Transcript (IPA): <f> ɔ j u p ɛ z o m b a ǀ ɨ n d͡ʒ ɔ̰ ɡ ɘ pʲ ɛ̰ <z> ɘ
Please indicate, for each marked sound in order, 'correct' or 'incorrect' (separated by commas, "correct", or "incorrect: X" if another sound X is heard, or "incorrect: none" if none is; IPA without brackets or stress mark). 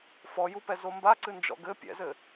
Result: correct, correct